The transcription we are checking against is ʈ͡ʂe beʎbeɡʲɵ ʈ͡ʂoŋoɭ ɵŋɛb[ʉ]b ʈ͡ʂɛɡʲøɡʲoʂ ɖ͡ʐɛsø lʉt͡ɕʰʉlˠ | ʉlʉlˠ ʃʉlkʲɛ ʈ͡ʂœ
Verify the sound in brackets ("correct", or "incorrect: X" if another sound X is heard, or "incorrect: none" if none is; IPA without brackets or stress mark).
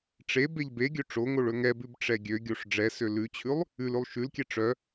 correct